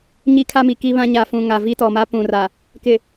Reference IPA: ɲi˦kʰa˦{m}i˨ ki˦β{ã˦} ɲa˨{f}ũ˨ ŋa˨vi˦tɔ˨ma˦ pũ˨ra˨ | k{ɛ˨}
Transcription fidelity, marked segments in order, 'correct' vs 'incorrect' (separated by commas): correct, correct, correct, incorrect